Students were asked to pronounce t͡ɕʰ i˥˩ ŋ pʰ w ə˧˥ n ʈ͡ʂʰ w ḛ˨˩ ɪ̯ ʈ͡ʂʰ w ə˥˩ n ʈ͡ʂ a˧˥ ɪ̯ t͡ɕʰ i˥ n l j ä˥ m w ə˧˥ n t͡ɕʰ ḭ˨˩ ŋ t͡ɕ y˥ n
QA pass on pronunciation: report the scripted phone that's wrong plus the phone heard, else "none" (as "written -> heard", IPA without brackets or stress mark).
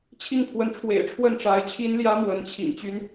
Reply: none